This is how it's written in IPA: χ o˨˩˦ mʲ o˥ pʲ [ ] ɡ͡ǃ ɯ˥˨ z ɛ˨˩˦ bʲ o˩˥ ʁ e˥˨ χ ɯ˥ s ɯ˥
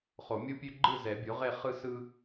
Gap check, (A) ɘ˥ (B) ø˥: B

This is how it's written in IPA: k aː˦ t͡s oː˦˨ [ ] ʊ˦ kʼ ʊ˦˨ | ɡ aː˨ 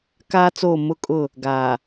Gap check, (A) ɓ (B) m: B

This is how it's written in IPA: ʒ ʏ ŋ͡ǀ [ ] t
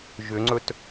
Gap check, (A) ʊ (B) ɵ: B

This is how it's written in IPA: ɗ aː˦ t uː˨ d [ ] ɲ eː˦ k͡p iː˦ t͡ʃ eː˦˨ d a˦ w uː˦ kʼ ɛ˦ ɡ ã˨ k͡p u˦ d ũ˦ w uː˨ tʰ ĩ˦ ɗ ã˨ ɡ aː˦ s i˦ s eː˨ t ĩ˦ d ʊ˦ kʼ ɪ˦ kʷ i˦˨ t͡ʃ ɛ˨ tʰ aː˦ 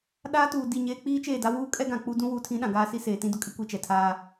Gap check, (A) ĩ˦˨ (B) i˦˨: B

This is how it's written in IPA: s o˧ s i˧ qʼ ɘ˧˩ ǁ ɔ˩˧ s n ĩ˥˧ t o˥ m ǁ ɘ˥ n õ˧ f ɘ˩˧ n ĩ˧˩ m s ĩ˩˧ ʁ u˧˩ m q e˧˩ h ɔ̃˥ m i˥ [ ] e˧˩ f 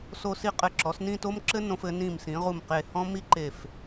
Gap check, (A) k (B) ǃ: B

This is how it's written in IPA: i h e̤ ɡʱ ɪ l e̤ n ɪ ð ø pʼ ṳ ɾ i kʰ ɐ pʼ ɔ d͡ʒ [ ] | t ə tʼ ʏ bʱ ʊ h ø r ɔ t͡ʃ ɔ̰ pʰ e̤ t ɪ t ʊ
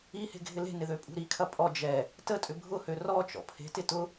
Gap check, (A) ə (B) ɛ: B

